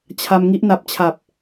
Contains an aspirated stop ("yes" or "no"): yes